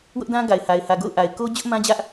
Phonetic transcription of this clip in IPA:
w ʊ˦ ʔ d ã˦ ɡ a˨ ɪ̯ h a˨ ɪ̯ h ä˨ ɡ o̰˦˨ ʊ̯ ʔ a˨ ɪ̯ k o˦ d͡ʑ ʊ˦ ʔ m ã˦ d͡ʑ ä˦ ʔ

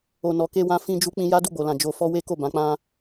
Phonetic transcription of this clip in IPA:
o˨ n ɔ˨ k e˧ w ã˧ f ĩ˧ d͡ʒ u˧ k͡p ĩ˧ j a˦ d u˦˨ ɡ͡b o˨ l ã˨ d͡ʒ o˧ f ɔ˦ w e˦ k o˦˨ b ã˨˦ k͡p ã˦

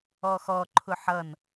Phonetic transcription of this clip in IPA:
ɔ x ɔ ǃʰ ʊ ħ ʌ n

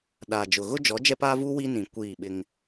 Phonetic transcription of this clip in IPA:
ɗ aː˨ d͡ʒ ʊ˨ ɣ ʊ˦ d͡ʒ ɔ˨˦ d͡ʒ ɛ˦ p aː˦ v uː˦ w i˦ n ĩ˨ kʷ iː˦˨ ɓ ɪ˦ ŋ

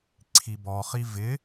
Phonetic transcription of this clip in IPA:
ǀʰ i b ɔ χ i v ɪ

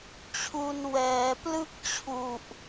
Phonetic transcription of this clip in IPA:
t͡ɕʰ u˧ n w ɛː˩˦ p l ɯ˥˩ k̚ t͡ɕʰ u˨˩ ʔ

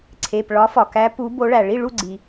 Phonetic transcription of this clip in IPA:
ǀʰ e˩˧˩ p ɭ ɒ˨˦ f ɒ˩ k æ˨˦ p u˨˦ b o˨˦ ɭ æ˩ ɭ i˥˨ ɭ u˥˨ ɡ͡ǀ i˩

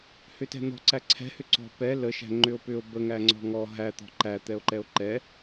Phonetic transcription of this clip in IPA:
h ʏ t ɛ̤ n̪ ɔ̤ ǀ æ ǀʰ ɛ̤ h ʏ ǀ ɔ̤ p ɛ l ə ʃ æ̤ ŋ͡ǃ ʏ o̯ p ʏ o̯ b ə ŋ æ ŋ͡ǀ ɔ̤ ŋ ɔ ɦ æ t̪ ɔ̤ ǃ æ t̪ ɛ o̯ ǃ ɛ o̯ ǃ ɛ

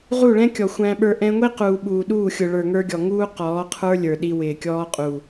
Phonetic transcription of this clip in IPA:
ʁ u˦˨ ɭ ɛ̃˦ kʲ ɔ˨ xʷ æ̃˦ ɓ ə˞˦ ʔ ɛ̃˧ ŋʷ i˦ q uː˨ ɓ uː˨ ɗ uː˦˨ xʲ ʊ˨ ɭ ə˞˨ ŋ ə˞˧ ɡʲ ɔ˨ ŋ uː˦ q ɔː˨˦ qʰ ə˞˦ lʲ ə˞˨ ɗ i˧ w ɪː˨ kʲ ɔː˦ qʼ u˨

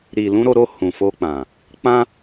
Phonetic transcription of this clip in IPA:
ɾ i˨ l ũ˧ ɾ o˧ ɾ o˧ h ũ˨ f o˧ k͡p ã˨ | k͡p ã˦

